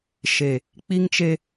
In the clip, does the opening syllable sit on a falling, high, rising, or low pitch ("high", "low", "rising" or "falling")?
low